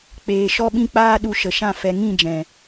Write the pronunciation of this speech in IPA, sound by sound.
k͡peː˨ ʃɔ˦ɓĩ˦ k͡paː˦ɗu˧ ʃə˨ʃã˦˨ fɛ˨ŋĩ˦˨d͡ʒɛ̃˨

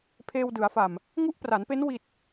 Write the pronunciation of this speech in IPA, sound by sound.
pʰeː˧wdɯ˩˦a̯fa˨˩m | ŋu˦˥ʔpra˩˦npe˦˥n wi˨˩t̚

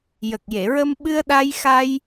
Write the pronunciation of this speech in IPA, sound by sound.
jə˨˩k̚je˨˩˨ɹə˧m ɓɨ˧ə̯ɗa˧j xa˧j

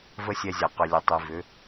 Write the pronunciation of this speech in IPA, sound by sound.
və˦sʲɛ˧zʲa˨ qʏ˨lʲə˨tˤi˨vʏ˨˦

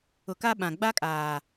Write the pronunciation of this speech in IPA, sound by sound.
ʊ˨ka˦ɓã˨ ɡ͡ba˦kʼaː˨

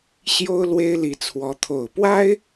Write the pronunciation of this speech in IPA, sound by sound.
ɕjo˥ʊ̯ lwe˥ɪ̯li˧˥t͡sʰwɔ˧˥ t̪ʰo˨˩ʊ̯pwa˥ɪ̯

